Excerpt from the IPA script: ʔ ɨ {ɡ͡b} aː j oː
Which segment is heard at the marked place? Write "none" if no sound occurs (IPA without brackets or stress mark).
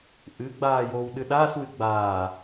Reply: ɡ͡b